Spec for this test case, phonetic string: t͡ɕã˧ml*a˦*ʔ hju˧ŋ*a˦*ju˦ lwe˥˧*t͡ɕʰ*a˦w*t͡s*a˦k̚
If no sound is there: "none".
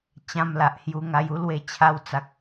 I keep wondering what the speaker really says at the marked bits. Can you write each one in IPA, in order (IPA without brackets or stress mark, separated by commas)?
a˨, a˧, t͡ɕʰ, t͡s